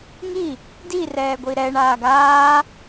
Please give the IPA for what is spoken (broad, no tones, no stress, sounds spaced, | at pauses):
ŋ i | d i r ɛː ɡʷ i ɾ ɛ ɳ aː ɡ aː